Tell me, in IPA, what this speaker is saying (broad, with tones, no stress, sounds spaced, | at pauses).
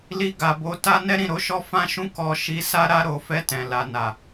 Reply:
l i˧ ɡ a˨ b o˨˦ t a˦ n ɛ˦ ɾ ĩ˦˨ ɾ o˨˦ ʃ ɔ˦ f ã˦ ʃ ũ˦ k ɔ˧ ʃ i˧ s a˦ ɾ a˧ ɾ o˨ f ɛ˧ t ɛ̃˨ l a˨ n a˨